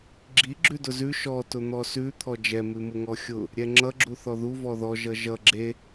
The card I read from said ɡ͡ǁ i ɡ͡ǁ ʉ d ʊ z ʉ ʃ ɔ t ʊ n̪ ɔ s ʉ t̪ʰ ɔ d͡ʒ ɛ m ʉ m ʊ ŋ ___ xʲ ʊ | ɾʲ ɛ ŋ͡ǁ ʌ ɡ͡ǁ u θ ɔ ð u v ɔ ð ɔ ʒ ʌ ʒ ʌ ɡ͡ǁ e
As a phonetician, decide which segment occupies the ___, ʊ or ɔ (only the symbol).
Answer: ɔ